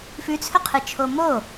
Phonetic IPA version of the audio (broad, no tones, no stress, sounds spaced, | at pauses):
f ʉ t͡sʰ ɵ qʰ ɨ t͡ʃʰ o m o